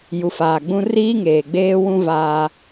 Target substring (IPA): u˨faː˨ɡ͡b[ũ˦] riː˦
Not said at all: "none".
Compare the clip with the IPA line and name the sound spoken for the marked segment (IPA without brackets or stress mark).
ũ˦